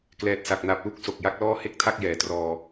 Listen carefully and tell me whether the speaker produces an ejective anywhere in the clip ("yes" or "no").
no